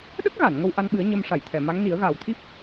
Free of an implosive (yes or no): no